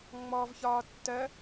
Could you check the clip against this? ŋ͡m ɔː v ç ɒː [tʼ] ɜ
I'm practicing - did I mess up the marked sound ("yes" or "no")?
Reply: yes